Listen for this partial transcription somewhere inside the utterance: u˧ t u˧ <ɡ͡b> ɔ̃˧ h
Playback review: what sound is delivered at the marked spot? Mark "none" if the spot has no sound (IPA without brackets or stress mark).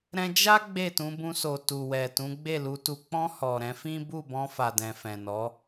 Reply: k͡p